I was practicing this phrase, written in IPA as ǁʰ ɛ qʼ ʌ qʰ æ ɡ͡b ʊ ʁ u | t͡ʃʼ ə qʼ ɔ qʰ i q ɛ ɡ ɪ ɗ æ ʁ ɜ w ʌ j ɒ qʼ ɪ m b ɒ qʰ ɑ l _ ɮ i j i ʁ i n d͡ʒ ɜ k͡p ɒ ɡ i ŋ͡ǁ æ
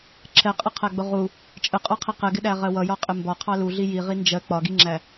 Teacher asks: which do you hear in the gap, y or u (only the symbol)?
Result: u